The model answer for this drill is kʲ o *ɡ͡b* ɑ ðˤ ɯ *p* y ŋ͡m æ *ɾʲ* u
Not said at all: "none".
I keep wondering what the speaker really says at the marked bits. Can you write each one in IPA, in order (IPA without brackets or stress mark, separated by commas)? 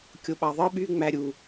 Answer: ɓ, ɓ, ɾʲ